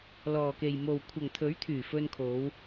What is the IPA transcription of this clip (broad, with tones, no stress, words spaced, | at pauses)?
lɔː˨ke˨jmo˨w kʷʰɐ˨ŋt̪ʰɵ˨˥ɥt̪ʰyː˨˩ fɵ˧nkʰo˨˧w